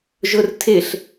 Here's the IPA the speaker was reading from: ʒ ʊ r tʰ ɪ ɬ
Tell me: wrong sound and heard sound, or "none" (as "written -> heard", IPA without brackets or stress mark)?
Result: none